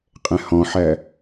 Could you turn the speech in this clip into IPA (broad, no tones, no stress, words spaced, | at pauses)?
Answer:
qʼɛ̃hɔ̃ħæ